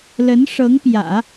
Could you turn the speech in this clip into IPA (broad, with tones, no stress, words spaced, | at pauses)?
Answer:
lə˧˥nʂɤ˧˥ŋ pjä̰˨˩˦